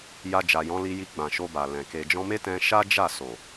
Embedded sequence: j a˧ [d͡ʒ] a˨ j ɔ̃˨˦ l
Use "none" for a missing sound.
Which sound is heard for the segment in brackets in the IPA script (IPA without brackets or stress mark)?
d͡ʒ